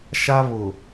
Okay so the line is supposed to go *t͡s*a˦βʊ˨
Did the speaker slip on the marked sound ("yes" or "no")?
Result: yes